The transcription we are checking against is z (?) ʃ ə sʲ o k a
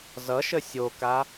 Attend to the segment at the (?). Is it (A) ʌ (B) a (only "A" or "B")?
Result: A